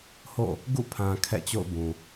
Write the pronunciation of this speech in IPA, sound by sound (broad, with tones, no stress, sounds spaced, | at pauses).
h o̰˦˨ | ɡ ṵ˦˨ pʰ ã˨ kʰ ɛ̰˦˨ t͡ɕ o̰˦˨ ʊ̯ b ũ˨